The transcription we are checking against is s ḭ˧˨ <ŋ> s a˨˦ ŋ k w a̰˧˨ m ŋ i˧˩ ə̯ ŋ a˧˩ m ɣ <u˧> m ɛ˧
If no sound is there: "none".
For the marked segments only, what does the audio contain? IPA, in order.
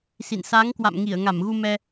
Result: n, u˧

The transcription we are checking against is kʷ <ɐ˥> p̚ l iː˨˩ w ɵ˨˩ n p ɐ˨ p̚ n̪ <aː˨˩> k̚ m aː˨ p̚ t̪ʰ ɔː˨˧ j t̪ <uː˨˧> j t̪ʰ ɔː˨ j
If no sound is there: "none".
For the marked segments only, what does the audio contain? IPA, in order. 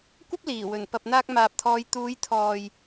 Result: ɐ˥, aː˧, uː˨˧

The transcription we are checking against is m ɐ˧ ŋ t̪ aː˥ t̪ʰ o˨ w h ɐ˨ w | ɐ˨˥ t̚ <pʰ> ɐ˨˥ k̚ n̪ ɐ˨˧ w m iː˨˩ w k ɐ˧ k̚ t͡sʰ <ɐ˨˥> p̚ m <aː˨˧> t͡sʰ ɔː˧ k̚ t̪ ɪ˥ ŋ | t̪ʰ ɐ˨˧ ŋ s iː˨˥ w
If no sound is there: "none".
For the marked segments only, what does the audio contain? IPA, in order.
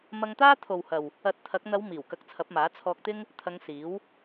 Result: t̪ʰ, ɐ˨˥, aː˨˥

